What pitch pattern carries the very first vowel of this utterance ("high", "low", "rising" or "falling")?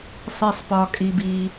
low